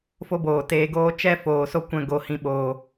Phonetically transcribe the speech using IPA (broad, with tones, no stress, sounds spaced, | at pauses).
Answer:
f o˦ b oː˨ t eː˧ ɡ oː˦ t͡ʃ ɛ˧ f oː˨ s o˦ kʷ ɛ̃˧ ɡ o˨ h ĩ˨ ɓ oː˨